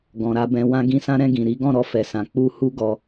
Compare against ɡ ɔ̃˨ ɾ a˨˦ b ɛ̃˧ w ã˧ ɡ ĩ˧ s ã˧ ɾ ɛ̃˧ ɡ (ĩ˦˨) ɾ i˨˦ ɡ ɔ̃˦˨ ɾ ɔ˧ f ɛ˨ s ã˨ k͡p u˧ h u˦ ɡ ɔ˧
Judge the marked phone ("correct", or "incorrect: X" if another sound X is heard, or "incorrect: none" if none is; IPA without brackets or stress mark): incorrect: ĩ˨